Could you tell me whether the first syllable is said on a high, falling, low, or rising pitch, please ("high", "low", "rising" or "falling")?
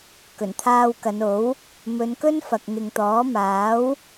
low